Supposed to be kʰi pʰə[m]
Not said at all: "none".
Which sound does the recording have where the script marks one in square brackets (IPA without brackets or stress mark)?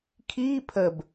b